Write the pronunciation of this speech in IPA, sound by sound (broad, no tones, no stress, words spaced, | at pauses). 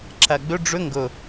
ǁæɡ͡bʏ ɖ͡ʐʏ ŋɡɵ